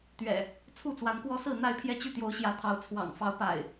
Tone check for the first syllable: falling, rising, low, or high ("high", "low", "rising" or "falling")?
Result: low